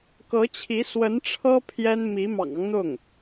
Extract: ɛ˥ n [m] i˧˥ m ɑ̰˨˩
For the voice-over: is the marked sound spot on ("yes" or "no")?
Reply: yes